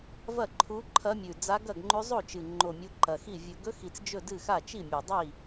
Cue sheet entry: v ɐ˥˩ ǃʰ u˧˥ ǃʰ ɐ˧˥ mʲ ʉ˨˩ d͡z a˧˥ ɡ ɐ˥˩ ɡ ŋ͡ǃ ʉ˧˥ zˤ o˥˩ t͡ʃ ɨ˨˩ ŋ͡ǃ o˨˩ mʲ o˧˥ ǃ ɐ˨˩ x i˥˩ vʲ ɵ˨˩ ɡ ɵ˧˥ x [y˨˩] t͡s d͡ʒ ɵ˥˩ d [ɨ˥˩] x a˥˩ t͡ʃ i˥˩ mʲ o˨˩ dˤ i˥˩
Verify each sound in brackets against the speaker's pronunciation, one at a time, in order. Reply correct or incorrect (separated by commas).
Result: incorrect, correct